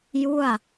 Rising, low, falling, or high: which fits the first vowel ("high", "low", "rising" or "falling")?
falling